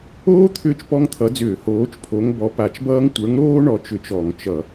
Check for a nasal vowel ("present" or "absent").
absent